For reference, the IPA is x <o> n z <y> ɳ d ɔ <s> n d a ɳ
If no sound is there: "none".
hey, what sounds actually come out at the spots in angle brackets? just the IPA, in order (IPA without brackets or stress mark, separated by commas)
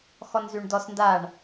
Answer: ɔ, y, s